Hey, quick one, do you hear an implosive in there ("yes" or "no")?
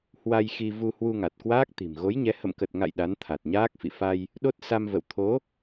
yes